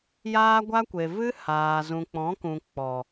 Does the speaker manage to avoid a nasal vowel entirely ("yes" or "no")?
no